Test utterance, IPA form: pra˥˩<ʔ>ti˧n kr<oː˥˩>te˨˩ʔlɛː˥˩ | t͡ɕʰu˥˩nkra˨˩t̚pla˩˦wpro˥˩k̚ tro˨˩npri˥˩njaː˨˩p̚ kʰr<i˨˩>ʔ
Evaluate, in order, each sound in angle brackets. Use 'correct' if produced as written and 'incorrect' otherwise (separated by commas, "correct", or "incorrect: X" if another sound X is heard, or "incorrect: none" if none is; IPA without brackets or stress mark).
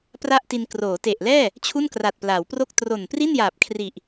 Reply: correct, incorrect: oː˩˦, correct